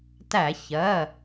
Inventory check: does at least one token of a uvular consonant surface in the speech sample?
no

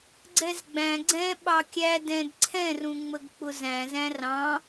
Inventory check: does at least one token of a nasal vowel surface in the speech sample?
yes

